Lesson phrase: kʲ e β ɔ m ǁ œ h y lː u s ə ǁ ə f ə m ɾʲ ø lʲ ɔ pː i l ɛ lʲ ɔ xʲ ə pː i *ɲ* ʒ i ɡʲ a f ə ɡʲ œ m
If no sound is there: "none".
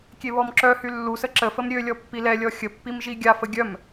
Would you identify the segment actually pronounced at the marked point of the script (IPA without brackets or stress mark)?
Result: m